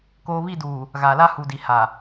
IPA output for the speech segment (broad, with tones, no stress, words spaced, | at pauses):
koː˨βi˦˨duː˨ | ɣaː˨la˦ hu˨di˨ ha˨